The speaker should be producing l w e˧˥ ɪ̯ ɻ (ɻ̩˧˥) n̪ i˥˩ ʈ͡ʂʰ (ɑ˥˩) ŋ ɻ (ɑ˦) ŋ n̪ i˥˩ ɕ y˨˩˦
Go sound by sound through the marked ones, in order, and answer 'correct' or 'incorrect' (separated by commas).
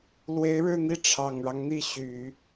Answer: incorrect, incorrect, correct